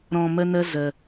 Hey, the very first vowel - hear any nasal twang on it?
yes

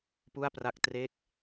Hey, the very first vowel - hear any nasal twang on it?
no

